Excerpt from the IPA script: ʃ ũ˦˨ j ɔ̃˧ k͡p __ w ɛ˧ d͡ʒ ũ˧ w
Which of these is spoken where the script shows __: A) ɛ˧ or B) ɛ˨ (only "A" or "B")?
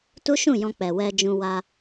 B